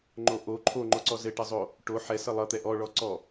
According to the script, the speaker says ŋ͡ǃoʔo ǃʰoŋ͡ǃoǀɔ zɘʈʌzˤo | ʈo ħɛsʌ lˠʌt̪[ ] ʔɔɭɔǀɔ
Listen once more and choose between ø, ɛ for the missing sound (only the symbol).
ɛ